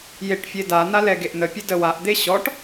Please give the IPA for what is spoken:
j e ʈ fʲ e d a n̪ a l ɛ ɡ e ʔ n̪ ə pʲ e d ə w a ʔ d̪ e ɕ ɔ ʈ

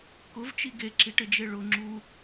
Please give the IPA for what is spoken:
k ʊ v t͡ʃ i ɡ e ǁ i ʈ ɪ d͡ʒ e ɭ ʊ ŋ͡ǁ u

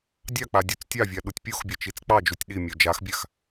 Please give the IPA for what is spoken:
dʲ ɑ k͡p a dʲ u t͡s tʲ ɑ vʲ a ɗ u tʲ pʲ o x bʲ a t͡ʃ i t͡s k͡p ɑ d͡ʒ u tʲ ɗ i mʲ o d͡ʒ a x bʲ a x

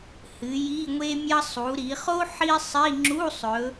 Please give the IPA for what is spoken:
h ɨ˩˧ j i˧˥˧ ŋʷ e˥ mʲ ɐ˥ sˤ u˩˧ ɾ i˩˧ χ o˥ ħ i˥ sˤ i˧˥˧ ŋ͡ǁ u˧˥˧ sˤ ɵ˩˧

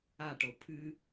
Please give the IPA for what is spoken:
a ʈ o pʰ ɨ

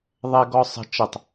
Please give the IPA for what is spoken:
ðˤ ɛ ɡ ɔ sˤ ə̤ t͡ʃ ə tˤ

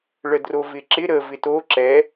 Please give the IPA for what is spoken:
ɭ ə d r o v ɪ ǁ ɪ ɾ ə v ɪ t o ǁ ɛ

